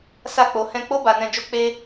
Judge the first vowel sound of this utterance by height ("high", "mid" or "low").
low